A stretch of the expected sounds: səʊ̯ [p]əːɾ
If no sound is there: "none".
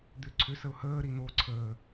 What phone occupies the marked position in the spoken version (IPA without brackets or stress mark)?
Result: h